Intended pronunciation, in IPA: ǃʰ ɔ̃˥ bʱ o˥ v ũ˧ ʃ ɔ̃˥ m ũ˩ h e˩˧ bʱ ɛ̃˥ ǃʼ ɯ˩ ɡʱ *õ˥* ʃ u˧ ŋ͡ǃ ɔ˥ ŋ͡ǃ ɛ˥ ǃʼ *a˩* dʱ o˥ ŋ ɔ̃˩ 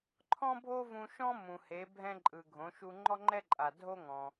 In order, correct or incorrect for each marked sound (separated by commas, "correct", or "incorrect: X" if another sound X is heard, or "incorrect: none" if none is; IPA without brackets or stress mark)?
incorrect: õ˩˧, correct